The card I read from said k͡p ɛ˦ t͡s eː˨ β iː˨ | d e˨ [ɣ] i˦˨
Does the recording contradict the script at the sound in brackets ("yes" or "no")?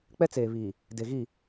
no